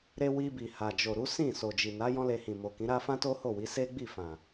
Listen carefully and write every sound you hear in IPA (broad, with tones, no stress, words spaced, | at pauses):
ɾe˧ wi˧bi˨ha˨d͡ʒo˨ ɾu˨˦sĩ˦˨ so˨d͡ʒi˨na˨˦ jɔ̃˦le˧hĩ˨ mo˨kĩ˨˦ɾa˦ fã˦to˦ho˦˨wi˨˦ se˦ɡ͡bi˦˨fã˨